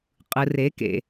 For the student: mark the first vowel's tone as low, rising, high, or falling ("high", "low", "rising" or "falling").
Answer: low